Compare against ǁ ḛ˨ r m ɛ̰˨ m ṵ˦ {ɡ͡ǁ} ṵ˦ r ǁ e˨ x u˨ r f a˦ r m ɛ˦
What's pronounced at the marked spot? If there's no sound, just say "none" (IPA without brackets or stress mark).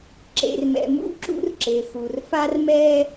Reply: ǁ